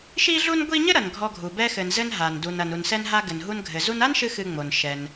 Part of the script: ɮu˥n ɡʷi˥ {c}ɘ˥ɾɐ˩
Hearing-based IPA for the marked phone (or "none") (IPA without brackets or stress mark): ɲ